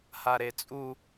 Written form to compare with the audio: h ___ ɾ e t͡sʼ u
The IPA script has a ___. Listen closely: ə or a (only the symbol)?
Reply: a